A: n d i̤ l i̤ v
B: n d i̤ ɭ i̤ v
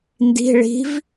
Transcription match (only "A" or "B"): B